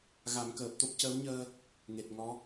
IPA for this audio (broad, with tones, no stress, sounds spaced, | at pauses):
ɣ a˨˩˦ m k əː˨˩ p̚ t̪ o˦˥ p̚ c əː˧˥ w ɲ əː˧ | ŋ e˨˩ t̚ ŋ ɔ˧˥